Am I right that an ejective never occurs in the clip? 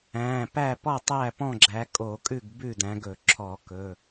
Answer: no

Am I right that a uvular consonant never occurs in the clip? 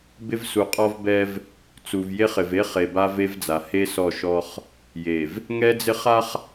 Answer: no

